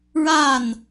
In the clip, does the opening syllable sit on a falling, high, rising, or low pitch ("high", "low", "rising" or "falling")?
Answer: falling